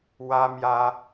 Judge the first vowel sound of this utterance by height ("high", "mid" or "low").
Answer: low